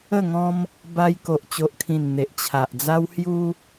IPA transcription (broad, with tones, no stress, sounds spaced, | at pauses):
ə˥˧ ŋ ɔ̃˦ m | b a˧ j k o˨ ʔ t͡ɕ o˨ ʔ kʰ ĩ˨˩ n n̪ e˨ ʔ t͡ɕʰ a˨ ʔ d͡z a˦ w h j u˦